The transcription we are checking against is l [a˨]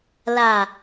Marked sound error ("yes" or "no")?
no